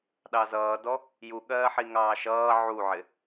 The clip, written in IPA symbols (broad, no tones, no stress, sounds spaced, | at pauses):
ɗ ɑ z ʌː d ɔ | j u ɠ ɜː ħ i ŋ ɑː ʃ ʌː ʕ u ʕ ɪ